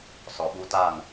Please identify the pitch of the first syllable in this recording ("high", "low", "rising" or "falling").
low